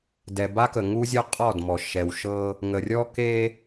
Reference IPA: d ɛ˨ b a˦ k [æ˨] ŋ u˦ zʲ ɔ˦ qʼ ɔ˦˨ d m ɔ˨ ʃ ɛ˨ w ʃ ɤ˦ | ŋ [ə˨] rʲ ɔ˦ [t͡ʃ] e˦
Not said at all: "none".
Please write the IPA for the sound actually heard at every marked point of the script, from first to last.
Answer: ə˨, ə˨, k

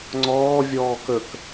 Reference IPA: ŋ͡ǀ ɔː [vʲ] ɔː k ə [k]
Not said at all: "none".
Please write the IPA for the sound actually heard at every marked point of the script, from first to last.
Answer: vʲ, k

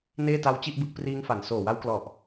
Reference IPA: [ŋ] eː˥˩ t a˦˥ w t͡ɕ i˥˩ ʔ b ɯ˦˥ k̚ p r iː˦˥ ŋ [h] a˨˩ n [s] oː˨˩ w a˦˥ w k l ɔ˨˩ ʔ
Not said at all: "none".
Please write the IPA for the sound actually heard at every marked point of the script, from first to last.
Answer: n, f, s

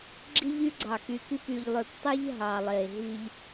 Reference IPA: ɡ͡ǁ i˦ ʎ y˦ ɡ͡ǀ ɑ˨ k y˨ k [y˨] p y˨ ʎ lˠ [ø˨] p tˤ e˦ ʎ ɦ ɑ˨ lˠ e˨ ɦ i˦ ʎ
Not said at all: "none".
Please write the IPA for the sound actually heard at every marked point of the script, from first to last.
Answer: y˦˨, ø˨

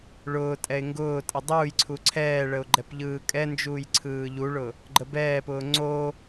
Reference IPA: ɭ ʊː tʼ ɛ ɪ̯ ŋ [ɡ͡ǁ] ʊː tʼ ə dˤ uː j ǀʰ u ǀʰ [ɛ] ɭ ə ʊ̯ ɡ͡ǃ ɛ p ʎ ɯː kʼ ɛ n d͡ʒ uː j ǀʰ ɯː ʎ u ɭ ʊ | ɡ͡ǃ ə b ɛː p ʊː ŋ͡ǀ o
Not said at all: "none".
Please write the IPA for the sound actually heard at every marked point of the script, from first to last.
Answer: ɡ, ɛː

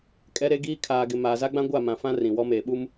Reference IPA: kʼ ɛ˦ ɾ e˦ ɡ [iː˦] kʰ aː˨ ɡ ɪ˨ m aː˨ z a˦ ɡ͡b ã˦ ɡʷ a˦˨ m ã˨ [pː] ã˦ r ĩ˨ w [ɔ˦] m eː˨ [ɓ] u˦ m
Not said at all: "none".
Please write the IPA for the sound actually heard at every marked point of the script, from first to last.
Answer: iː˦, f, ɔ˦, ɓ

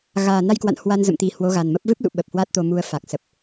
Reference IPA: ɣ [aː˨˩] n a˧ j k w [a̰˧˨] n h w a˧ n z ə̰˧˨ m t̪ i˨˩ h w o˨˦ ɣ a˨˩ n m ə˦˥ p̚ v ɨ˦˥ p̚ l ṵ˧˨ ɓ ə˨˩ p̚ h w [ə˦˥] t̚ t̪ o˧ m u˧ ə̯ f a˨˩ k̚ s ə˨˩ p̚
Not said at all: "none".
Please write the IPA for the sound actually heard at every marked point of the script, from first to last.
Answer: aː˨˩, a̰˧˨, a˦˥

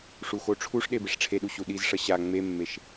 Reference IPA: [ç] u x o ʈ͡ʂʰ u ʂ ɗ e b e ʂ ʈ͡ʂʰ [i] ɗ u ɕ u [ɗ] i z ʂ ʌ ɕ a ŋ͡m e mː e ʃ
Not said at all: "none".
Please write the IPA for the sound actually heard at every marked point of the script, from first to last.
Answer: ʂ, e, ɗ

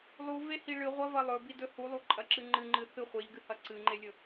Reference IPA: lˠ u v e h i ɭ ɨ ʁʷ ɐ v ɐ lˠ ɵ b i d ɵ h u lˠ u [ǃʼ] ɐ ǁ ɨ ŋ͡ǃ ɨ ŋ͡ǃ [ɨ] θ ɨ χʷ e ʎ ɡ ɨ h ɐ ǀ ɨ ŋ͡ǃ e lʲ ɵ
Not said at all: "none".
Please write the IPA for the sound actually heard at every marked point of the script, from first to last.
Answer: ǃʼ, ɨ

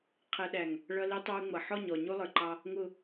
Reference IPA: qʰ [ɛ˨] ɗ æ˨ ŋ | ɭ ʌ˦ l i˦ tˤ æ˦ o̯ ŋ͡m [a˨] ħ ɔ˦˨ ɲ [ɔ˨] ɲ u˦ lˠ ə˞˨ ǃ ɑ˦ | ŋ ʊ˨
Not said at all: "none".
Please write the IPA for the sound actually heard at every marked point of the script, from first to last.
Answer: ɛ˨, ʌ˨, ɔ˨

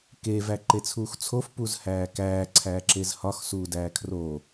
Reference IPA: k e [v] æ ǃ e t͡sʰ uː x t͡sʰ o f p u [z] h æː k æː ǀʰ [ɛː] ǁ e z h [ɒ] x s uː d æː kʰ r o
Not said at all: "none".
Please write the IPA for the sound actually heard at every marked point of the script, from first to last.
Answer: v, z, æː, ɒ

